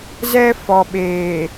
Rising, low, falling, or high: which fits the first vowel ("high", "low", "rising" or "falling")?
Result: high